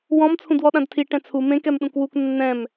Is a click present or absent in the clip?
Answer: absent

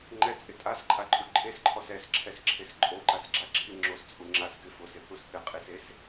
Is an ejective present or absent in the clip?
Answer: present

